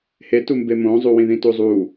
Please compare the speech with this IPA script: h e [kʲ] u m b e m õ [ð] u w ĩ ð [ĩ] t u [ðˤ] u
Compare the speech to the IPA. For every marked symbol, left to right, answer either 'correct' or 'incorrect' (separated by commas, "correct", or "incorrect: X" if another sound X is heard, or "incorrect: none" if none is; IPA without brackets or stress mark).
incorrect: t, incorrect: zˤ, correct, incorrect: zˤ